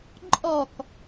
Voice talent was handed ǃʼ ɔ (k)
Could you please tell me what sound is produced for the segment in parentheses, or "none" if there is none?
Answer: k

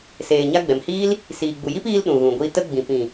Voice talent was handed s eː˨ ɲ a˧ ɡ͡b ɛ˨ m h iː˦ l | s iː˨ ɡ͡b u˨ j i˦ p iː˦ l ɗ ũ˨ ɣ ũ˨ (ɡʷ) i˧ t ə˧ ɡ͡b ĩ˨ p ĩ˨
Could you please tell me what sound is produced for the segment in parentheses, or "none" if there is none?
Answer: ɡʷ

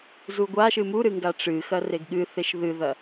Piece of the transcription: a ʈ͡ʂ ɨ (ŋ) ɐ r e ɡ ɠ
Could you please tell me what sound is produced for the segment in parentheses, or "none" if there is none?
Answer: x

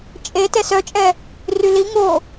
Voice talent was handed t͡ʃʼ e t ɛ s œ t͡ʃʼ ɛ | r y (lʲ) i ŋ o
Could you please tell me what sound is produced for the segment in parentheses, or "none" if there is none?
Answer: l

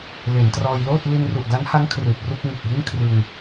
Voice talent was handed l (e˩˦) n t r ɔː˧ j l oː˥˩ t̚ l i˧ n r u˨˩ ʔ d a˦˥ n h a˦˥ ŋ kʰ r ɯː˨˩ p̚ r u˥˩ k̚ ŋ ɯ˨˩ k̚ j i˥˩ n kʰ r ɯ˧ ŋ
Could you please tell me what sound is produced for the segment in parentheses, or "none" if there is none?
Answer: e˩˦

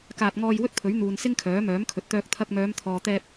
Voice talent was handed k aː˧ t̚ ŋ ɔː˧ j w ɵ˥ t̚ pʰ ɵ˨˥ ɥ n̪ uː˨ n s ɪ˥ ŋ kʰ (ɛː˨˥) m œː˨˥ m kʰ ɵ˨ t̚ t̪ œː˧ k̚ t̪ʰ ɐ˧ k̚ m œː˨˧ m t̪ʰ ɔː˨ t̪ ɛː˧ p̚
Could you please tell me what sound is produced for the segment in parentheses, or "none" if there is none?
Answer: œː˨˥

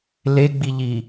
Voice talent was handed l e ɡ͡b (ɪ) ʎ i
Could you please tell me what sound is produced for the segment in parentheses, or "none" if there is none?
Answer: i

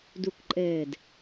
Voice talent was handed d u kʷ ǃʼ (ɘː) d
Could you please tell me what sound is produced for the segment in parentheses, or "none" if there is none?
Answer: ɘː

